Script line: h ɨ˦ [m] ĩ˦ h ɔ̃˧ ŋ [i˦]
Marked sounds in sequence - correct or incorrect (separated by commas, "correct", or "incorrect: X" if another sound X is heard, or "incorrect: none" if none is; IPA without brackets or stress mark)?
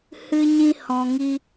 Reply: incorrect: ɲ, correct